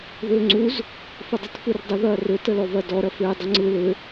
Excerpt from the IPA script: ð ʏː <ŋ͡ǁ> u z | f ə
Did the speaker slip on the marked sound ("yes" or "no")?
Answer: yes